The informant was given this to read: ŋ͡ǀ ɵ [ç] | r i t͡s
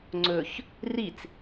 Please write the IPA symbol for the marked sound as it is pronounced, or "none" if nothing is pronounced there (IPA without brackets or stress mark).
ç